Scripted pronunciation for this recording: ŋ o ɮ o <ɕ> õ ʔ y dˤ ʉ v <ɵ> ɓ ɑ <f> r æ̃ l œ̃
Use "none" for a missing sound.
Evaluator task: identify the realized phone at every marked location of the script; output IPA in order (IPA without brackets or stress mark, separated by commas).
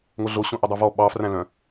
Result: ɕ, ɔ, f